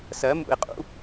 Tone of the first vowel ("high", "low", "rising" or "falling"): rising